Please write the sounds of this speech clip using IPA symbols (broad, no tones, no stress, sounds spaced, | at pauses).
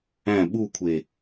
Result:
æ̃ ɓ u kʷʰ e